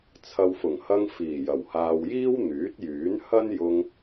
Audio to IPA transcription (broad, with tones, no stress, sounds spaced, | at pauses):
t͡sʰ ɐ˨ w f ʊ˨˩ ŋ h ɐ˧ ŋ f iː˨˩ j ɐ˨˩ w h aː˨ w j iː˥ w n̪ yː˨˥ t̚ j yː˨˥ n h ɐ˥ n j ʊ˧ ŋ